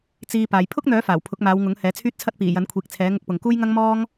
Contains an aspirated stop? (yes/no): yes